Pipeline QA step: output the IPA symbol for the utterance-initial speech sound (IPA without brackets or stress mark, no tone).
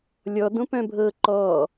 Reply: lʲ